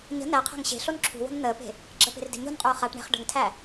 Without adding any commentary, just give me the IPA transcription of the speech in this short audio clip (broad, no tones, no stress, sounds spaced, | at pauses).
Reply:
ɲ ə̤ n̪ æ qʰ æ̤ ŋ ɕ e̤ ɬ o n ǁʰ ṳ w o̤ n n̪ əː p e̤ | ɡ͡ǁ ə p e̤ r d e̤ ɲ o̤ n qʼ uː χ a ʈ ɳ e̤ χ ɖ ə̤ ŋ tʰ æ